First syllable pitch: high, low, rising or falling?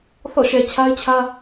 falling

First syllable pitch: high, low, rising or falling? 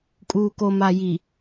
low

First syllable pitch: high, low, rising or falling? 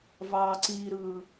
low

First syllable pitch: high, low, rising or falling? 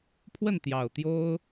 falling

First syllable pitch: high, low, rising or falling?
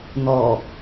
low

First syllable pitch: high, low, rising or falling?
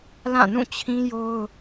falling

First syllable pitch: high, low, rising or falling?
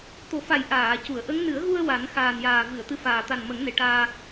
low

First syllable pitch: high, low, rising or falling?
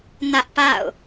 high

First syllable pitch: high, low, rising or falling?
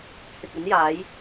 low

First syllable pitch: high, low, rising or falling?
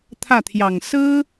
falling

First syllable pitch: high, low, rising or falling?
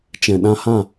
low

